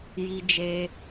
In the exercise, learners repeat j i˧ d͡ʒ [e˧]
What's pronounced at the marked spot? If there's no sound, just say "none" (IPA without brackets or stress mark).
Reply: e˧